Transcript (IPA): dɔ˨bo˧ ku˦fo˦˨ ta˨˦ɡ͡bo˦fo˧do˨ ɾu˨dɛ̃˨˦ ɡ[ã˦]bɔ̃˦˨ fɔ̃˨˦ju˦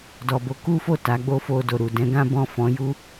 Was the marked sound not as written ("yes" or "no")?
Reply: no